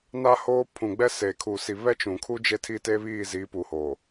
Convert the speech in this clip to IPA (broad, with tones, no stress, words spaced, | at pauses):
na˦ hoː˦ pʰũ˨ɡ͡bɛ˦ se˨kʰu˨ si˨ βɛ˦t͡ʃũ˨kʰu˦ d͡ʒe˦tʰi˦ te˦βiː˦˨ziː˨˦ pu˨ho˨